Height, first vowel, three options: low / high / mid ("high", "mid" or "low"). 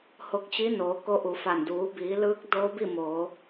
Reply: mid